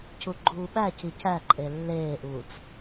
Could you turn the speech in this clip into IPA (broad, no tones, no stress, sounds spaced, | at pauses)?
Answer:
cʰ u ɡ͡ǃ uː ɓ æ cʰ i cʰ æ ǃʼ e lː eː ʔ uː t͡s